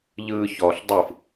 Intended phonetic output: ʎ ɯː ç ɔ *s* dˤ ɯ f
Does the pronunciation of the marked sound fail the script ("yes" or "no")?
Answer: yes